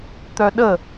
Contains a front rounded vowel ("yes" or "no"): yes